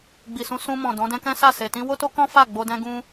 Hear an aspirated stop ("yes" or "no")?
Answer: no